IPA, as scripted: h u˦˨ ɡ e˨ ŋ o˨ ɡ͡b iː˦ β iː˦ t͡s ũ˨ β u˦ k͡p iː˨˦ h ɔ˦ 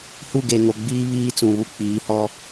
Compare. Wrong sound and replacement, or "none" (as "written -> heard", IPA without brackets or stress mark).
none